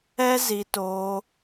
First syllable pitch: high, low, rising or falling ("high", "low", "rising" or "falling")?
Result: high